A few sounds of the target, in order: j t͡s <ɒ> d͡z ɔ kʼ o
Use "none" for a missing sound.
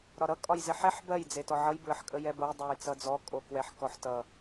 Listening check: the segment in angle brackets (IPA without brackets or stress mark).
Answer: ʌ